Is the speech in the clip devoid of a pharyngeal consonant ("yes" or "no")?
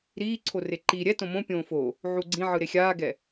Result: no